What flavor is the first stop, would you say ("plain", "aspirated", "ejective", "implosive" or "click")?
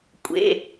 ejective